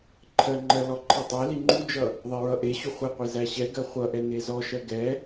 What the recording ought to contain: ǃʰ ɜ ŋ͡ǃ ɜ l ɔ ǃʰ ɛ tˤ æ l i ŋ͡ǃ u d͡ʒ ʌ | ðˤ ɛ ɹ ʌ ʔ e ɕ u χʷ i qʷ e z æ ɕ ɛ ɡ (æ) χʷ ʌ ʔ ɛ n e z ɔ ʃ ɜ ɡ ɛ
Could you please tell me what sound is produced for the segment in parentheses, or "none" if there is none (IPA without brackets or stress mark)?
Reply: ɜ